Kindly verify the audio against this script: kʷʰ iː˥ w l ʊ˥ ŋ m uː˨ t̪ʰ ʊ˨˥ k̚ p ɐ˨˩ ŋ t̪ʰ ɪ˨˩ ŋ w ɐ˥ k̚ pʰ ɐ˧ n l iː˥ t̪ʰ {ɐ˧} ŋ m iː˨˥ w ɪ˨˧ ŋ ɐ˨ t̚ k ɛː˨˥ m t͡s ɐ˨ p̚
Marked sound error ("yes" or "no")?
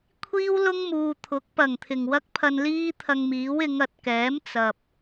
no